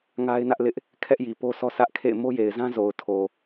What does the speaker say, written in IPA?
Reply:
ŋa˦ɪ̯nä˦ʔlɪ˦ʔ | kʰɛ˦ʔji˨po˦ sɔ˦sʰä˦ʔkʰḛ˦˨ɪ̯ mo˦je˨ɪ̯zã˦ zo˨ʊ̯tʰo˨

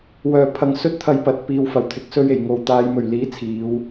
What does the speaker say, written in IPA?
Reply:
wœː˨˩ pʰɐ˧ŋ sɵ˥t̚t̪ʰɐ˧jpɐ˨t̚ piː˨wfɐ˨˩wt̪ʰɪ˨˥k̚ sɵ˧ɥe˨˩j ŋo˨wt̪aː˨˧jmɵ˨˩ɥliː˨˥ t͡sʰiː˨˧w

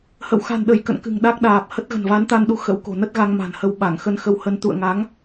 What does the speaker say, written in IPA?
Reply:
hə̰˧˨wxa̤˨˩nɗə˧˩j kə̰˧˨nkɨ̤˨˩ŋ ɗa˦˥k̚ɗaː˨˩p̚hə˦˥t̚ ɣə̤˨˩nva˨˦nt̪a˧nɗu˨˦ xə̰˧˥wko̤˨˩nə˦˥t̚ɣa˧ŋ ma̤˨˩nhə˧wɓa˧˩ŋ xə˧nxə˧whə˧n t̪ṵ˧˨ə̯ŋa˨˦ŋ

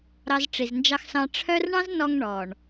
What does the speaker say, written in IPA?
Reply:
ɾɑ˧z ʈ͡ʂi˨znd͡ʒɑ˧xsɑ̃˧ ʈ͡ʂʰœ˦r ɳɑ̃˦znɔ˧ŋ ɳɔ˨ɳ

